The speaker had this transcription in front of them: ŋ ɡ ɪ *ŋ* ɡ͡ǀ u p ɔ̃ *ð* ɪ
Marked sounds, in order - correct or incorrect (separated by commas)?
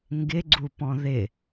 incorrect, correct